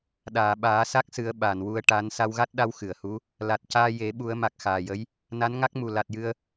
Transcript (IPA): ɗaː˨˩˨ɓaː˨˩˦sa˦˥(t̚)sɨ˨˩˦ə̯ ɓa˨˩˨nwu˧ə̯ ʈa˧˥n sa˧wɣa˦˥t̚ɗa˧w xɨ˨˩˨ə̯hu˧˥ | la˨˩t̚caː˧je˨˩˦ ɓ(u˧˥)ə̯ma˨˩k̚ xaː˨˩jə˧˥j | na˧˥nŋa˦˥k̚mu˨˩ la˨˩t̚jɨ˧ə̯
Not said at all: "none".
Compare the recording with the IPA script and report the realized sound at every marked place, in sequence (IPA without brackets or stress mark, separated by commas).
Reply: k̚, u˨˩˦